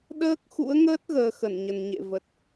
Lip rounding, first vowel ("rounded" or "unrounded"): unrounded